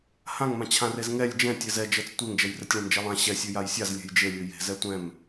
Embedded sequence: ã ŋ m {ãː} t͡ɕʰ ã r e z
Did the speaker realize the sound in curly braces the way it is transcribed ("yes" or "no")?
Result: no